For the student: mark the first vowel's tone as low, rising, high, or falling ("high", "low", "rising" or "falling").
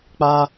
high